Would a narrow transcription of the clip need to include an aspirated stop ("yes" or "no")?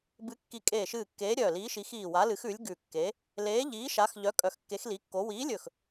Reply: no